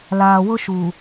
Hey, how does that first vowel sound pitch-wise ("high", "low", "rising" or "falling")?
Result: low